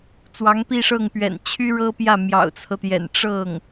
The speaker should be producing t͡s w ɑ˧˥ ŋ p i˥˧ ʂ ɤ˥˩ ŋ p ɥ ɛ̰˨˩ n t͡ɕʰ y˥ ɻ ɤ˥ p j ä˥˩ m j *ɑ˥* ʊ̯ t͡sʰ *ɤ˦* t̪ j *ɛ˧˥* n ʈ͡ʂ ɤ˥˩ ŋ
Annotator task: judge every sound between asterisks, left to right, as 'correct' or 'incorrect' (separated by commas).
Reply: incorrect, correct, incorrect